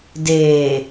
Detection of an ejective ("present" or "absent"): absent